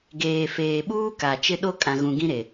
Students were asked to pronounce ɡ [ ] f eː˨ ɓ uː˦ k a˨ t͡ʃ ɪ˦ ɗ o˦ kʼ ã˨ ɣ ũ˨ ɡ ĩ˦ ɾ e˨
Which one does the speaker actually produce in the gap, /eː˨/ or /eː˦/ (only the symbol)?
eː˨